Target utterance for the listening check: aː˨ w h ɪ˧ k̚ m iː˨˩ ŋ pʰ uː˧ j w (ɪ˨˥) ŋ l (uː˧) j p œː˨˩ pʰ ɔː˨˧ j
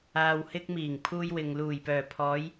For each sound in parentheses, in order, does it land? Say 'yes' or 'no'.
no, no

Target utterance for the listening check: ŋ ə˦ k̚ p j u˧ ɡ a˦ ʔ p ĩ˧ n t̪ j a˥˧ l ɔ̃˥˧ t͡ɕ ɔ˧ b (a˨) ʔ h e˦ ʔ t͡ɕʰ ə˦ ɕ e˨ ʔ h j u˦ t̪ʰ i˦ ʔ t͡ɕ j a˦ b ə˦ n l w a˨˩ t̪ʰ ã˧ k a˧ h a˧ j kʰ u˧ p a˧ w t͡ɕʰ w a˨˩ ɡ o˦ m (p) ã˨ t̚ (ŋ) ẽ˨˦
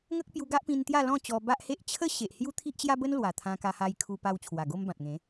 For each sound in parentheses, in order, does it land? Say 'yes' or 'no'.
no, no, yes

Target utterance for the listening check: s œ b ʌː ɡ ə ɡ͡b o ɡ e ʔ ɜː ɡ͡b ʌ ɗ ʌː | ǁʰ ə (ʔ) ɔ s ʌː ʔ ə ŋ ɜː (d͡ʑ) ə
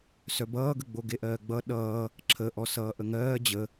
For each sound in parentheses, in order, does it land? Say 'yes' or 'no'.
yes, yes

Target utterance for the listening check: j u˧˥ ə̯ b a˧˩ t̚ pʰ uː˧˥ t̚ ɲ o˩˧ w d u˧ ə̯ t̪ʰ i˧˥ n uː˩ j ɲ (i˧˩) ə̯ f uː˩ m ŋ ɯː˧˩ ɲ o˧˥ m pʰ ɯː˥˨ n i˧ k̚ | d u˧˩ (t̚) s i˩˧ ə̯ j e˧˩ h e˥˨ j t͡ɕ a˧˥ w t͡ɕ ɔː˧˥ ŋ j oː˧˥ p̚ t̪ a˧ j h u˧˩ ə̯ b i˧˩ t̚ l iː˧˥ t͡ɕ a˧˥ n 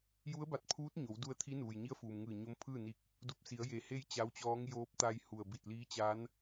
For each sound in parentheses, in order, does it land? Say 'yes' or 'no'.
no, no

